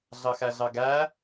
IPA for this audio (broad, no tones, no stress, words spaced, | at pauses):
ɮɑxæɮɑɡæ